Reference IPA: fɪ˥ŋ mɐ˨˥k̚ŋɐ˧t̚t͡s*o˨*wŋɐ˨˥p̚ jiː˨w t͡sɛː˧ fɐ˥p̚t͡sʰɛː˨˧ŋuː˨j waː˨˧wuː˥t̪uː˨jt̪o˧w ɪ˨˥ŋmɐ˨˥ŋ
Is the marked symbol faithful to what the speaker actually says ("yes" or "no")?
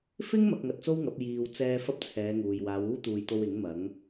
no